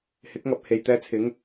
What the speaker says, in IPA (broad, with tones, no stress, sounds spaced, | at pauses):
h ɪ˨˥ k̚ ŋ ɐ˨ p̚ h e˨ j t̪ ɛː˧ t͡sʰ ɪ˨˥ ŋ